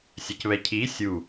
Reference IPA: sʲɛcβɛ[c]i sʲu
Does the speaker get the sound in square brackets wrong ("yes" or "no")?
yes